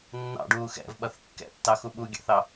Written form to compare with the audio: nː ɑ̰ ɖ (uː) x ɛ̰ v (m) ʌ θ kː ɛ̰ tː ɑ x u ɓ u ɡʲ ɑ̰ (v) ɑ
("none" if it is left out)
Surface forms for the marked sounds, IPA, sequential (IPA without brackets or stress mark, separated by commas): uː, ɓ, θ